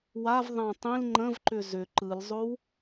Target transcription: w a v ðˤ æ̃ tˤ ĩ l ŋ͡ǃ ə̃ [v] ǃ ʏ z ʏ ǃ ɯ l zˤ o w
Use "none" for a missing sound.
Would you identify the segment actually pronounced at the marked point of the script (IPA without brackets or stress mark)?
v